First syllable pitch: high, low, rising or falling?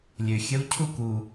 low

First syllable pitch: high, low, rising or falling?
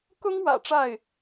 high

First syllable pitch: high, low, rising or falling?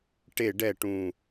falling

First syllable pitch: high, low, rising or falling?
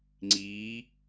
rising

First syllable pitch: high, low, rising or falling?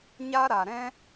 high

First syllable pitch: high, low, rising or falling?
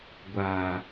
low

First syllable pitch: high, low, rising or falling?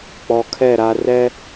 low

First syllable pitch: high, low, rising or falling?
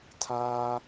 high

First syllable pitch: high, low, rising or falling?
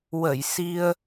low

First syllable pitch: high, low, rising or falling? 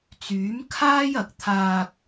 rising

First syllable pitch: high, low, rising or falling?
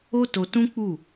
high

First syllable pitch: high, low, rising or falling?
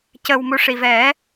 low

